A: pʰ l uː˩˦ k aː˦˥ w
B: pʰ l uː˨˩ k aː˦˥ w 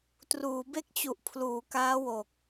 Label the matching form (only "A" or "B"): A